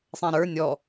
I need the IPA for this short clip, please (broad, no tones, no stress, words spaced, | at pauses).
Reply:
sˤɛ̃ɾə˞ nʲɔ